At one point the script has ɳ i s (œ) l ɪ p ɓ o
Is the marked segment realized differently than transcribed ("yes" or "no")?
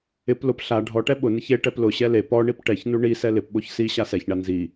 yes